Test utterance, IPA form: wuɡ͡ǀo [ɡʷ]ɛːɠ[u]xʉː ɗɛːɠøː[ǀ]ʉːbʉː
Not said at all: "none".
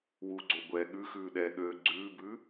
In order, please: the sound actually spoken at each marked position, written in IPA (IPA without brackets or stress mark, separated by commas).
ɡʷ, ʉ, ɡ͡ǀ